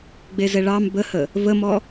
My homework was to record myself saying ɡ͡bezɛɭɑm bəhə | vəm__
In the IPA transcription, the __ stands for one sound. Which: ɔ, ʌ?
ɔ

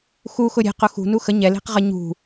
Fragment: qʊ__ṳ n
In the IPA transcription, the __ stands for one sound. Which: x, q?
x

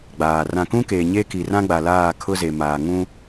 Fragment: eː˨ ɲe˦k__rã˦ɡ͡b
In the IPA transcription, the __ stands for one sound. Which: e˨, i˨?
i˨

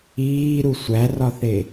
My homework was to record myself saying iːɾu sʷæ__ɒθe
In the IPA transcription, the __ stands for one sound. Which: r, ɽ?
r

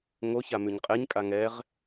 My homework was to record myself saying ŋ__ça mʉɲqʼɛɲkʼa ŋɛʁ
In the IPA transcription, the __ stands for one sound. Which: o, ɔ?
o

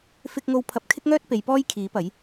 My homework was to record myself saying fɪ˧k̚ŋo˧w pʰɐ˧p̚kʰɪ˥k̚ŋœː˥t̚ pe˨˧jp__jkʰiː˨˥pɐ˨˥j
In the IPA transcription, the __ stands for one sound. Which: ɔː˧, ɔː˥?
ɔː˥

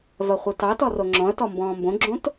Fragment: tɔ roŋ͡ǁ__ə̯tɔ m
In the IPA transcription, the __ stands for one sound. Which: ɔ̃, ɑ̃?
ɔ̃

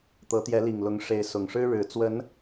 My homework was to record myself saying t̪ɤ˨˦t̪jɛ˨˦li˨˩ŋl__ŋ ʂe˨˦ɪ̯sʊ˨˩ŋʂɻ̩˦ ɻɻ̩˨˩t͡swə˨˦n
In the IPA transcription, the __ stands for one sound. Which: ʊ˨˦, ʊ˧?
ʊ˨˦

